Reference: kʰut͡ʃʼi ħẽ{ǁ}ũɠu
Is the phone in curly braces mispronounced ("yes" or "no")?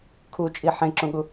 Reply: no